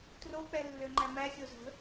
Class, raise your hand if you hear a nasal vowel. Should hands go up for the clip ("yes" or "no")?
no